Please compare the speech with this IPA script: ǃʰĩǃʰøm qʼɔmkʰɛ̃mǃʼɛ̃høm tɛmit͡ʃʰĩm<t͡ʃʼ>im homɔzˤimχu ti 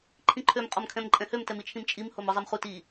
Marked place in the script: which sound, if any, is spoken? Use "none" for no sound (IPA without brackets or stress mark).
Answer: t͡ʃʼ